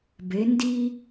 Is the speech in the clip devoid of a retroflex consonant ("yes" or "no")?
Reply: yes